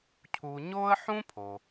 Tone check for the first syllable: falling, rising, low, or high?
low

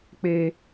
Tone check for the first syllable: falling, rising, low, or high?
low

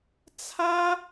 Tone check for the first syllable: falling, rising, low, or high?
high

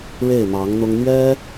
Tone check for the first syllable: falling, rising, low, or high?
falling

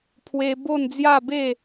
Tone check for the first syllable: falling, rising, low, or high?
high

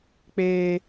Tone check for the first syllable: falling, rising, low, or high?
high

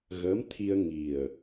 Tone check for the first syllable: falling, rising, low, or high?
rising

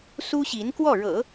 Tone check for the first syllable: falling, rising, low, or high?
high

